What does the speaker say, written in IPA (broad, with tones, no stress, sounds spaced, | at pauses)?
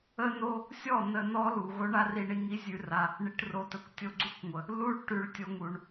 ə˧ n o˧ | sʲ ɔ˦˨ n ə˧ n ɔ˦ l u˨ ɣ o˦ ɳ a˦ r i˧ ɳ i˧ ŋ i˦ zʲ ʉ˧ r a˧ | ɳ i˧ ʈ r o˧ t ə˧ kʷ tʲ o˧ ɡ͡ǀ u˦ kʷ ŋʷ ə˨ | l u˦ ɭ ʈ ʉ˧ ɭ tʲ o˧ ŋ u˨ ɳ